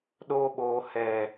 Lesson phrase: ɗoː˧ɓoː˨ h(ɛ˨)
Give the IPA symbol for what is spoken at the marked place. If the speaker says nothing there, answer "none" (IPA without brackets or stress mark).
ɛ˨